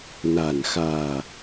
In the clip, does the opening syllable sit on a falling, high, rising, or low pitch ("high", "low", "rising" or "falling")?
low